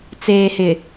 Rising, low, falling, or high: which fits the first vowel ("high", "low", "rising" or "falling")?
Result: low